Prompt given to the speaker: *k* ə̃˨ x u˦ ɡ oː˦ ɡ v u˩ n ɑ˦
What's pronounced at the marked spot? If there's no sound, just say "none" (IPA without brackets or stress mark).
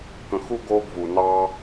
k